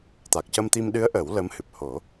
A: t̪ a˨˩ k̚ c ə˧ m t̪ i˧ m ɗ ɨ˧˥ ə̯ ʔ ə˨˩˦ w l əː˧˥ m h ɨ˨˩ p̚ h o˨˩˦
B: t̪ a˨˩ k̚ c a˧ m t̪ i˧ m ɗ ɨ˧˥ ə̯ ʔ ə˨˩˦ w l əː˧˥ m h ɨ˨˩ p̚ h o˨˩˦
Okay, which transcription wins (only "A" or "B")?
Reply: A